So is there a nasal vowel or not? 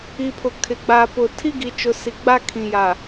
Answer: yes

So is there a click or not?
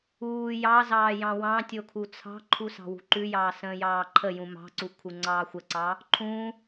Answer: yes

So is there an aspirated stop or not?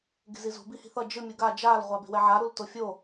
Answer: no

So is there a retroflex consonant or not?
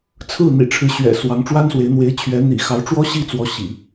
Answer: yes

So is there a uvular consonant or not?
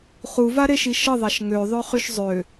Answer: yes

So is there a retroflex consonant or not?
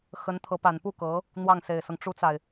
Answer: yes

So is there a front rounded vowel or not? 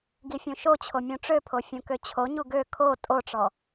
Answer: yes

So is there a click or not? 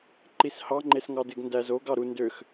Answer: yes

